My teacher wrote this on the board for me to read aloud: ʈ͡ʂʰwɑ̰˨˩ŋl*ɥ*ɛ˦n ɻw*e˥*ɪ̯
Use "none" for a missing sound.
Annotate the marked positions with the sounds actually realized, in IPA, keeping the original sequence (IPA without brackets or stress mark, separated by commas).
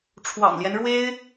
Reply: j, e˥